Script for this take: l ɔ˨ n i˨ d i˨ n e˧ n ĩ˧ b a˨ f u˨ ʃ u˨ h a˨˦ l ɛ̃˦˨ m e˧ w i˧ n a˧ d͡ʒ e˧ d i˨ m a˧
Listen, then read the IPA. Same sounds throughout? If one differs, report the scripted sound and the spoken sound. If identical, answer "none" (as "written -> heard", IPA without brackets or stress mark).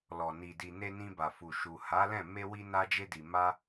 none